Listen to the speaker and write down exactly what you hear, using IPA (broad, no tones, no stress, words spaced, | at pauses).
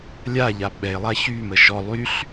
lʲaʎa ɓɛɪ̯lˠa çymə ʃɔ lˠyɬ